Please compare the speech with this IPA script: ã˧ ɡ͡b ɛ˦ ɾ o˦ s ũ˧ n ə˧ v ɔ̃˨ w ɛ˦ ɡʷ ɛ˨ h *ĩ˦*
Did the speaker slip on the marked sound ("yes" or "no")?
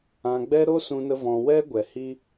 yes